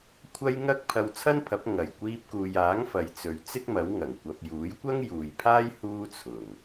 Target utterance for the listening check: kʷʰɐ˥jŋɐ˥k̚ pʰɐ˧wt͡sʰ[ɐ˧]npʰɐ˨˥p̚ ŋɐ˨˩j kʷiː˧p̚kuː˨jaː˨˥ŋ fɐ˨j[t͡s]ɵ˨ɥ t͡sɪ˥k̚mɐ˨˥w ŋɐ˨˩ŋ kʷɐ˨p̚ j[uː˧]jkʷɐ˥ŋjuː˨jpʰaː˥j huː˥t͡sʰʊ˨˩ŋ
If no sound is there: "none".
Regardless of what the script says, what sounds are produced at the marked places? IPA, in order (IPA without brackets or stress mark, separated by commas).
ɐ˥, t͡s, uː˨˥